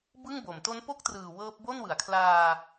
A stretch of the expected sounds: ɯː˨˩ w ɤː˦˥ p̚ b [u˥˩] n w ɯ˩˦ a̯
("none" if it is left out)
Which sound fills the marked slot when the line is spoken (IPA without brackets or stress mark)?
o˥˩